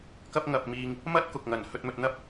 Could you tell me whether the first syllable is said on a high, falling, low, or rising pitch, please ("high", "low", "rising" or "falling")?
high